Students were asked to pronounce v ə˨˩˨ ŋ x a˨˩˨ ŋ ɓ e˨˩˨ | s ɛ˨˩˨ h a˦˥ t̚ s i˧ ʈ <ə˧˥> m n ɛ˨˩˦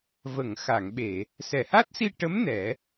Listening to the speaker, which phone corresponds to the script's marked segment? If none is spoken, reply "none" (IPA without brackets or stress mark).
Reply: ə˧˥